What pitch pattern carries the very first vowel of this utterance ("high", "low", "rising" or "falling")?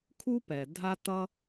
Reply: high